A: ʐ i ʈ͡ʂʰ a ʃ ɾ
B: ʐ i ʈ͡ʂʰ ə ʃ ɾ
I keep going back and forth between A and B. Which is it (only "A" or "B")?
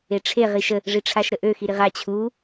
A